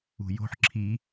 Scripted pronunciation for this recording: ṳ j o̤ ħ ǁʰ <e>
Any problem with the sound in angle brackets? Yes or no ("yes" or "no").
yes